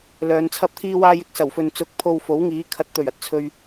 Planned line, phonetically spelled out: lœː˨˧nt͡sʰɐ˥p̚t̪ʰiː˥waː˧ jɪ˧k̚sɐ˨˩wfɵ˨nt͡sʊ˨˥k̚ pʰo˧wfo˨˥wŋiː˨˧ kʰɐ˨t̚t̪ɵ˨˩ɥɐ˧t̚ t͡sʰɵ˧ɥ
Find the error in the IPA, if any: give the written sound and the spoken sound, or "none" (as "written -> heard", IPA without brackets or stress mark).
aː˧ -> aː˥